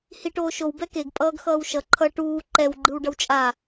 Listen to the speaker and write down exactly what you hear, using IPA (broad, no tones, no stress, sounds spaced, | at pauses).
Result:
h i ʈ oː ʃ o w b ɛ k e ɡ pʼ ʌː ɡ x ʌː w ʃ ʌ ǃʰ ʌ ʈ uː ǃ ɛ w ɡ͡ǃ ɯ w ɖ ʌ w t͡ʃʼ a